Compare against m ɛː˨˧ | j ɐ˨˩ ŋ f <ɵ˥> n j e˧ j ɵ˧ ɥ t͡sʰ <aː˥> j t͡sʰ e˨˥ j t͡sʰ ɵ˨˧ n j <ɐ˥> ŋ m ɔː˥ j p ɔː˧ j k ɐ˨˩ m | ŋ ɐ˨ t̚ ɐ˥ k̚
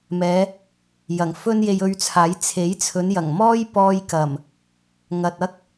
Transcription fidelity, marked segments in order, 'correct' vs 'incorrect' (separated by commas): correct, incorrect, incorrect